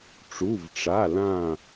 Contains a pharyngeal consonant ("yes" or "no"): no